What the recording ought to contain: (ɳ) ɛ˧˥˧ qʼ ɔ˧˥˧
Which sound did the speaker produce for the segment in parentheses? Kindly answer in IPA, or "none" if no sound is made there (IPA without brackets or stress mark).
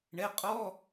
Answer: ɳ